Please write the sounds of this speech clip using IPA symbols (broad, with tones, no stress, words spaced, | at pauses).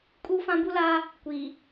kʼu˦ fã˦bu˦la˦ | kʷi˨